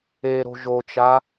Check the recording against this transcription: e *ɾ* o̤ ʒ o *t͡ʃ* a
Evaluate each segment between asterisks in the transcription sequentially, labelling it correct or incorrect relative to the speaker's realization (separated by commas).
correct, correct